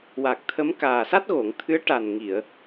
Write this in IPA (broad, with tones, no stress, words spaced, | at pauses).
wa˨˩k̚t̪ʰə˧˥m kaː˨˩sa˦˥t̚ɣo˨˩˨ŋ t̪ʰɨ˧˥ə̯ʈa˨˩n ŋi˨˩˨ə̯